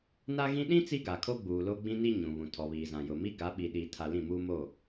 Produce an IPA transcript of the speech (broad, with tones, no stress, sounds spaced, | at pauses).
n a˦ ɣ ĩ˦ ɗ ĩ˦ t͡s i˦ ɡ a˨ kʰ o˦ ɡ͡b uː˨ l o˦ ɡ͡b ĩ˦ n i˦ ɲ ũ˨ β ũ˨ tʰ ɔ˨ β iː˨ z ã˨ j ʊ˨ m i˦ ɡ a˨˦ ɓ i˨ ɗ iː˨ tʰ a˨ l ĩ˦˨ m uː˦ m o˦˨